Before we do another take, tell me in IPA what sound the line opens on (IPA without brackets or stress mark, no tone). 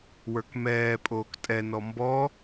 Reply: w